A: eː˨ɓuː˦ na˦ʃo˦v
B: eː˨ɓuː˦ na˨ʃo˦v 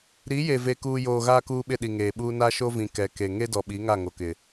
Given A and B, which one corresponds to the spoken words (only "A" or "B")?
A